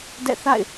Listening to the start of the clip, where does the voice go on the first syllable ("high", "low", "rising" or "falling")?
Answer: falling